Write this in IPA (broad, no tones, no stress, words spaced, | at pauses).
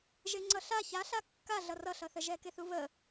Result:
ʒeŋ͡ǀʌɬa ça ɬakːaɮʌ rʌɬʌθəʒɛ keθuβə